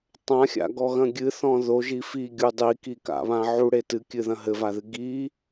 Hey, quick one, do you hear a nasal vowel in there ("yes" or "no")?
yes